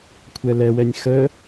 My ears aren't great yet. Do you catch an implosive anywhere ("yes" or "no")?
no